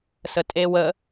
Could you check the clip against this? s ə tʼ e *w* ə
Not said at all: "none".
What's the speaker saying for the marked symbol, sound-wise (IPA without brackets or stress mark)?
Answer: w